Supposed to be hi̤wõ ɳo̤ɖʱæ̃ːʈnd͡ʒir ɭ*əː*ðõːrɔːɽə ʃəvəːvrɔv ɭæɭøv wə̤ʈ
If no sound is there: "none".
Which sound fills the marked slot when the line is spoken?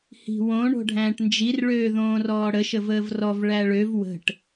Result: øː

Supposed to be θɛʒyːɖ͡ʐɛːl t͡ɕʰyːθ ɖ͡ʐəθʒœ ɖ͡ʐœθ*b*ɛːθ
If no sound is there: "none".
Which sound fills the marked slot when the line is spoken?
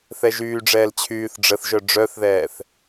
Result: ð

